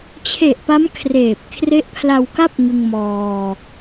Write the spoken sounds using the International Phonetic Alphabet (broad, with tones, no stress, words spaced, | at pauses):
t͡ɕʰe˨˩ʔpa˦˥m kʰreː˨˩p̚ kʰre˦˥ʔpʰla˧wka˥˩p̚ ŋɯ˧ŋmɔː˧